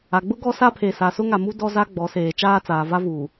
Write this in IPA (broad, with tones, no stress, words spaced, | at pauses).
a˨ɡ͡bʊ˦ ɡɔ˦sa˦pʰe˨ sa˨sʊ˦ŋa˨mu˦ dɔ˦ za˦ɡ͡bɔ˨˦seː˨ t͡ʃaː˦t͡saː˨ va˦vuː˨